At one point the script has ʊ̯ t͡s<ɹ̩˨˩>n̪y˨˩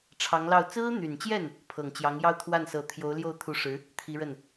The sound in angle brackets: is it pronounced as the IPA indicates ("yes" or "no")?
no